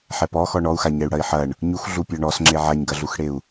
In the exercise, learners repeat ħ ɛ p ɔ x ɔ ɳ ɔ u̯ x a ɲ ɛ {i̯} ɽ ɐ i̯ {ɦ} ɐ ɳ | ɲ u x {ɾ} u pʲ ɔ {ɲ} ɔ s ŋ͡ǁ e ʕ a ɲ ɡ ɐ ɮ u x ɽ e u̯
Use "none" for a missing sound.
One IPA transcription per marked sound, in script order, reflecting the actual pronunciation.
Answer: y̯, ħ, ɮ, ɳ

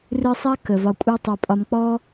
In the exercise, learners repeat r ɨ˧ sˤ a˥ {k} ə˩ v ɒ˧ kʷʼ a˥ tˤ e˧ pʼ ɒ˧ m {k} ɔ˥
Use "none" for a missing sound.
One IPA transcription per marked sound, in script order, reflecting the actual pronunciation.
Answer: k, k͡p

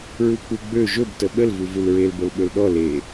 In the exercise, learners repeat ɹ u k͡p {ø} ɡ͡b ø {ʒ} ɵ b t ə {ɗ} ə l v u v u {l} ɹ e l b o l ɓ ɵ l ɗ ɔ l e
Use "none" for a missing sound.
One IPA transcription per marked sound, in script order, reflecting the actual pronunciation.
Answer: u, ʒ, ɓ, l

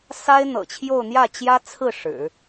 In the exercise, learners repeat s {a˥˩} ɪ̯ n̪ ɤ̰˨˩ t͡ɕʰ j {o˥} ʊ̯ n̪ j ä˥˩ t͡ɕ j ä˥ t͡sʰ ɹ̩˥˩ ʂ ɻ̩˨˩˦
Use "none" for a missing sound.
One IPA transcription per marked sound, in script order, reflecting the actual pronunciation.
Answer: a˥, o˥˧

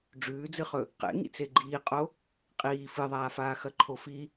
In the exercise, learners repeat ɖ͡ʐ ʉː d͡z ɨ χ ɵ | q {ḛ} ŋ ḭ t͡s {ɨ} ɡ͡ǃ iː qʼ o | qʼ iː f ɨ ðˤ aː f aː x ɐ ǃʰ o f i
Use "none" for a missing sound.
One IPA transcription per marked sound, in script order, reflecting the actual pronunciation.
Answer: ḛ, e

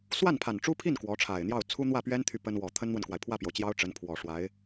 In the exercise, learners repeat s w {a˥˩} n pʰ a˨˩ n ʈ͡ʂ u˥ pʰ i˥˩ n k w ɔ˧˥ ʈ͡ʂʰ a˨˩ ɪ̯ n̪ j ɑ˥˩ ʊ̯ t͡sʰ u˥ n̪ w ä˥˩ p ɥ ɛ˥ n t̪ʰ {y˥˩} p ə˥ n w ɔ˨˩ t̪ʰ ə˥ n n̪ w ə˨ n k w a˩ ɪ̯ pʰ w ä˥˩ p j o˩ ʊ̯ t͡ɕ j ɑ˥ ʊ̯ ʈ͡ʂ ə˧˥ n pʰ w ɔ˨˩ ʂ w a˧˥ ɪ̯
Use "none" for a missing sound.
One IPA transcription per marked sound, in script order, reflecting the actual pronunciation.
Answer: a˥˩, y˥˩

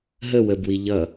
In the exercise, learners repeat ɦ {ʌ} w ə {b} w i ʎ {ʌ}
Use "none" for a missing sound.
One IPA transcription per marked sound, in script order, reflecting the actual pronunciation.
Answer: ə, b, ʌ

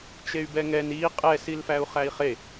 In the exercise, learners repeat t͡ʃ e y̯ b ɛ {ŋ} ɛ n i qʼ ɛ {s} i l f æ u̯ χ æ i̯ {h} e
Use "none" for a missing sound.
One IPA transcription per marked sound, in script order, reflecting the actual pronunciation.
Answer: ŋ, s, χ

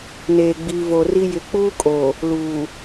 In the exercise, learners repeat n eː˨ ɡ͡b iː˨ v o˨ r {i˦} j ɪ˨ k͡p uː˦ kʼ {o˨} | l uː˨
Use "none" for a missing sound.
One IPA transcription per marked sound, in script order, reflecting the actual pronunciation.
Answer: i˦, o˨

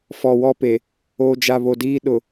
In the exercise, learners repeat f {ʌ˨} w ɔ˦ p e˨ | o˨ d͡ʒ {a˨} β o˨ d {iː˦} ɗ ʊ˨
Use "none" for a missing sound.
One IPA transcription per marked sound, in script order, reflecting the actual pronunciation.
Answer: ɔ˨, a˨, iː˦

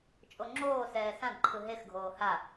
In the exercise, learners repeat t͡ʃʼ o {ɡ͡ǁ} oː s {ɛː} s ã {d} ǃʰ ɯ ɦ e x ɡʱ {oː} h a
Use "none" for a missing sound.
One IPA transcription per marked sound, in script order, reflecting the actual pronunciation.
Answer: ŋ͡ǁ, ɛː, d, oː

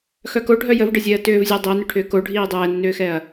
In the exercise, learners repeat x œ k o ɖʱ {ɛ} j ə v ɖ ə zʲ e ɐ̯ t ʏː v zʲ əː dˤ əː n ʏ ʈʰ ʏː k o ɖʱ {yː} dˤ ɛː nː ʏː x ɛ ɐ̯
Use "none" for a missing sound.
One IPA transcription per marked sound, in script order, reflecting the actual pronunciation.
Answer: œ, iː

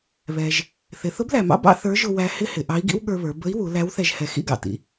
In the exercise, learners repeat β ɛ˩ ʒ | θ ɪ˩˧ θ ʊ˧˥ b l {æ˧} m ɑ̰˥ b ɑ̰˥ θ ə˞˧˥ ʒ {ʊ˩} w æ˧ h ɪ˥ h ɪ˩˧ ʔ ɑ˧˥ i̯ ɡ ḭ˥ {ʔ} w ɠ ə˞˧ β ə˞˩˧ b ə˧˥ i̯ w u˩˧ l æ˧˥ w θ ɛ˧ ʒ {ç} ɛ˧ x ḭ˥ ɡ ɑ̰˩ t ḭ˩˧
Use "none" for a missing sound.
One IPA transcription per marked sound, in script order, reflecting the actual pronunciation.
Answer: æ˩, ʊ˧, none, h

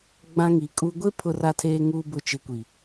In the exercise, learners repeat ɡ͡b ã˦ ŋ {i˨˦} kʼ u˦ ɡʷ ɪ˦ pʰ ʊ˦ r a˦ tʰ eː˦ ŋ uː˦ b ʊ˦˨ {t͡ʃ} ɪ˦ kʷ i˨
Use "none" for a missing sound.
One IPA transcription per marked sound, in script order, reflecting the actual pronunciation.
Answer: i˨˦, t͡ʃ

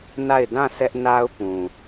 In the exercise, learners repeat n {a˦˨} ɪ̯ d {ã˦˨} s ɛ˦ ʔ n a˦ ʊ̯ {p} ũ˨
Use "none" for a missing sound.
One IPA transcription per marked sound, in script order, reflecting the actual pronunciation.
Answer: a˦˨, ã˦˨, p

